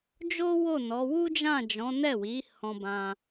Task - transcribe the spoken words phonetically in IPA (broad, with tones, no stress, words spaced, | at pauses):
d͡ʒo˦ wo˦˨nɔ˨˦ wu˦d͡ʒã˦˨d͡ʒɔ̃˨˦ nɛ˦˨wi˨˦hɔ̃˧bã˧